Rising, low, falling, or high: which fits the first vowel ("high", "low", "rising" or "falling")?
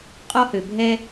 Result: high